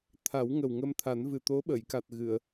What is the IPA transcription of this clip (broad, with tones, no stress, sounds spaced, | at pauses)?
t̪ʰ a˨˩˦ w ŋ ə˨˩ w ŋ ə˧ m t̪ʰ a˨˩˦ n v ɨ˨˩ t̪ o˧˥ ɓ ə˨˩˨ j k a˨˩ t̚ ɣ ɨ˨˩˨ ə̯